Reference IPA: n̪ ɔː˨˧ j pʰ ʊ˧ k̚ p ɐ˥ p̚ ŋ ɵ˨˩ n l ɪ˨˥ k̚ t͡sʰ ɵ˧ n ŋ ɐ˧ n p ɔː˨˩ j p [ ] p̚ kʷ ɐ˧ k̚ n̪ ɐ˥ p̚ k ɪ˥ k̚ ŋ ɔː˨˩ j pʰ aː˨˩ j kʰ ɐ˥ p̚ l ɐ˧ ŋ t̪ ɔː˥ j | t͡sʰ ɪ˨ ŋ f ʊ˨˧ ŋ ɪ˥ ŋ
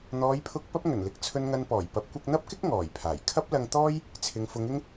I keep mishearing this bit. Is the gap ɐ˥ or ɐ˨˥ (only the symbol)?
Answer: ɐ˨˥